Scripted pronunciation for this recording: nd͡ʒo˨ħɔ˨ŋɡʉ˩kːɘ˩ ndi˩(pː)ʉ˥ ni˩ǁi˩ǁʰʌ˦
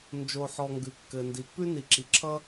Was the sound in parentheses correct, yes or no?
yes